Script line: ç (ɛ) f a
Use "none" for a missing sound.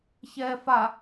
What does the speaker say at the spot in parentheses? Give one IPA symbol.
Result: ɛ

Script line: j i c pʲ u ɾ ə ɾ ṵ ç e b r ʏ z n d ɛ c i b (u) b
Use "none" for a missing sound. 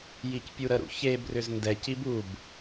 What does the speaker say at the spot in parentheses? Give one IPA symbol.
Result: u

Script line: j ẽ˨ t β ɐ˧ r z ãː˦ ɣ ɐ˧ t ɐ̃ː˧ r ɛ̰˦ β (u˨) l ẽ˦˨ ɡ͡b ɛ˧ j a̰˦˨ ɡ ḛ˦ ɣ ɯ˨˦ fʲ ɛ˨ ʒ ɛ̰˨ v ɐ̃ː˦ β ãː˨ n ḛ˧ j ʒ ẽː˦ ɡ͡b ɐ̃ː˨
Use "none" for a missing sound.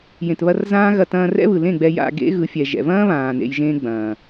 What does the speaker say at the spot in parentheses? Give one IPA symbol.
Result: ɯ˨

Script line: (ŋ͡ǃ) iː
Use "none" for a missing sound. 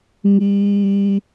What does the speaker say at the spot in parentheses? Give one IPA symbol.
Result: ŋ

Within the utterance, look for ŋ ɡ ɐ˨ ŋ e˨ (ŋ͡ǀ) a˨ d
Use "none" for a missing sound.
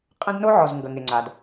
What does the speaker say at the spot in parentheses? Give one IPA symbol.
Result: ŋ͡ǀ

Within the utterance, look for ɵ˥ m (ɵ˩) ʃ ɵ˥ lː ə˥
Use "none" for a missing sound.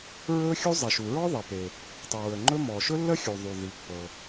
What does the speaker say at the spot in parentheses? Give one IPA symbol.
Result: ɔ˩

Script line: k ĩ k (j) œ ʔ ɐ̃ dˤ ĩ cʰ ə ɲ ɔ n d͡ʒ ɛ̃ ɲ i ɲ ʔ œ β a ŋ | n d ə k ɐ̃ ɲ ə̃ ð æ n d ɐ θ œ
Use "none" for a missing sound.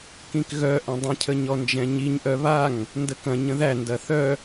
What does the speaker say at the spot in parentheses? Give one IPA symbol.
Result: ɣ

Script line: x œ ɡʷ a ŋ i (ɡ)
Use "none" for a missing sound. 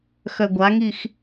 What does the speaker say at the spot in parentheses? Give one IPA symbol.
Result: x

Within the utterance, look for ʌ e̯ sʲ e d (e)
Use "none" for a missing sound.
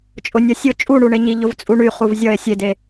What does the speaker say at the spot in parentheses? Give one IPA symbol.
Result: e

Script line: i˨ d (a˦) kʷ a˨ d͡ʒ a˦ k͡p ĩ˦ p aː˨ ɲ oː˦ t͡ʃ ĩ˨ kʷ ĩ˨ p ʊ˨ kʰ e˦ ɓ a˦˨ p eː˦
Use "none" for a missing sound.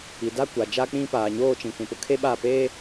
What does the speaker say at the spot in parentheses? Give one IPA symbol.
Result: a˦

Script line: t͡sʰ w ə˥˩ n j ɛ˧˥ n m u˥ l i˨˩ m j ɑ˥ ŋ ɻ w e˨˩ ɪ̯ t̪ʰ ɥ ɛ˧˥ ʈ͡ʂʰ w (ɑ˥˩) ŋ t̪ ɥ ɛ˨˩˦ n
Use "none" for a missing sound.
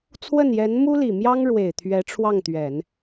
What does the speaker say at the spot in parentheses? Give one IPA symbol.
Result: ɑ˥˩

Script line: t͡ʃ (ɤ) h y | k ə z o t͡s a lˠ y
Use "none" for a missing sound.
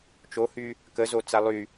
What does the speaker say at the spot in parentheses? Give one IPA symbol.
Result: o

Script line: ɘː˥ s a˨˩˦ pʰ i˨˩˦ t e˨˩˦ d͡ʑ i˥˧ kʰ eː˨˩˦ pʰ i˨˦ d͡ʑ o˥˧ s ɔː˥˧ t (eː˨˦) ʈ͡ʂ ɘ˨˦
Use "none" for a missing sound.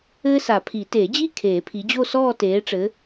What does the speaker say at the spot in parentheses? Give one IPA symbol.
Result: eː˨˦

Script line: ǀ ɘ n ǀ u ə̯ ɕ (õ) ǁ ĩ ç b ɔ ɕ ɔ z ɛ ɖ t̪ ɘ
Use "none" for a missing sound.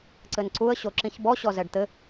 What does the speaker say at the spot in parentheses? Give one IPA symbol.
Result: o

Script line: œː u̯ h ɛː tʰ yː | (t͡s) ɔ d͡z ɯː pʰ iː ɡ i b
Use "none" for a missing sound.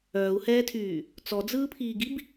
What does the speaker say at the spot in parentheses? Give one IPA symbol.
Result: t͡s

